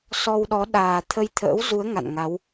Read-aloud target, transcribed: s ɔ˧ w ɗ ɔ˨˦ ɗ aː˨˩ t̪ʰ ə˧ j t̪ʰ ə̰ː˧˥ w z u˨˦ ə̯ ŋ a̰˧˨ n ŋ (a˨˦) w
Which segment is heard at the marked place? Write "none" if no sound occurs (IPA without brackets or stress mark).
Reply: a˨˦